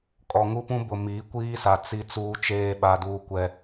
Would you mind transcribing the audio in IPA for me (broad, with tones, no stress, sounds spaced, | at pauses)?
kʼ ɔ˨ ŋ u˦ p ũ˦ b ʊ˨ m iː˨˦ kʷ iː˦ s a˨ t͡s i˦ t͡s uː˦ t͡ʃ eː˦ ɓ a˦ d uː˦ kʷ ɛ˦